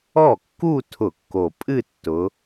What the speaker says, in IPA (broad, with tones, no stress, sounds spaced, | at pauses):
ɔ˥˩ kː u˥˧ tʰ ʊ˧˩˧ kː o˨˩ pʼ ɨ˥˧ tː ʊ˨˦